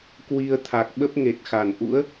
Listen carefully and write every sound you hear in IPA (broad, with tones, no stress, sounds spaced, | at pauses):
k w i˧ ə̯ t̪ʰ a˨˩ k̚ ɓ ə˦˥ p̚ ŋ e˨˩ t̚ x a˧˩ n ʔ ṵ˧˥ ə̯